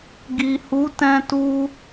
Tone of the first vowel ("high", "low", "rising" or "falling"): low